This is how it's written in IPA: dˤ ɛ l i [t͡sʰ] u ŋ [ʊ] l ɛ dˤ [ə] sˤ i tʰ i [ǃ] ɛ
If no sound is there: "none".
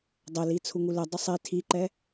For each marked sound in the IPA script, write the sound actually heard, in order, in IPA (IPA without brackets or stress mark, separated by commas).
t͡sʰ, u, ʊ, ǃ